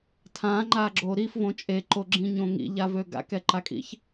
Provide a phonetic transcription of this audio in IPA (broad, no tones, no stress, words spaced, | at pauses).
tʰãːŋ͡ǃaːɡ͡ǁoː ɾifvõ t͡ʃʼeǃoɡ͡ǁĩɲõ ŋḭʎavø ɡa̰kɛǃakʼḭç